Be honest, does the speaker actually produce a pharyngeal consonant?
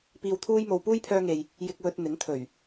no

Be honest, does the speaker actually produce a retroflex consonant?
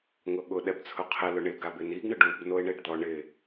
yes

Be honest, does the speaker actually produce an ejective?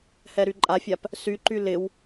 yes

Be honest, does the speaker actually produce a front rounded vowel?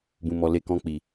no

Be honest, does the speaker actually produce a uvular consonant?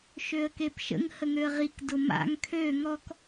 yes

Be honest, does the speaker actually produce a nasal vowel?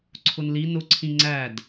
yes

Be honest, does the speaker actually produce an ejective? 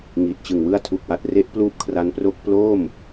no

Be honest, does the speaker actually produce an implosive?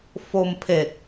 no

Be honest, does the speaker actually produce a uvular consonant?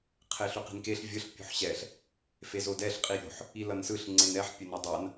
yes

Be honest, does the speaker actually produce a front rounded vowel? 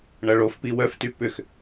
yes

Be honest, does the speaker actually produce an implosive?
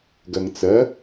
no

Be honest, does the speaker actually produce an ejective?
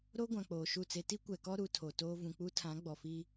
no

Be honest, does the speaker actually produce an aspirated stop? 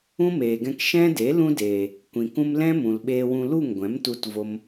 no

